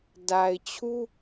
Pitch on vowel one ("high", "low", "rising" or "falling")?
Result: low